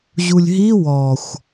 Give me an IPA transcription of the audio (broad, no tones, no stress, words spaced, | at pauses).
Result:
ʑulʲɦi wɔxʷ